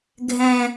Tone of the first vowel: low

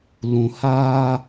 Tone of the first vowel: low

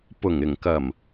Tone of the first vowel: low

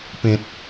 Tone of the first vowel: low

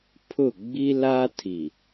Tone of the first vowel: falling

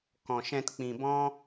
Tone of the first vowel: low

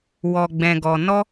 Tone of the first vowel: low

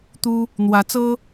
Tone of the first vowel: high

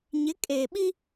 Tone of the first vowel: rising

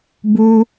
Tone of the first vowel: high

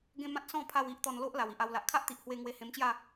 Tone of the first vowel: high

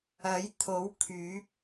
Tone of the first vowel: rising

